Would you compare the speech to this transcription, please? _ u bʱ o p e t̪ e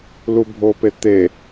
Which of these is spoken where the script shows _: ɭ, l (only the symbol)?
l